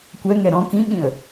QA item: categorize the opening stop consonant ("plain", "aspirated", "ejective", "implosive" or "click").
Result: plain